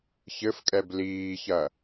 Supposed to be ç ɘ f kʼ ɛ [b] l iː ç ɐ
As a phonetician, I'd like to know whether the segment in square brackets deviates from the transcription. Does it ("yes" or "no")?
no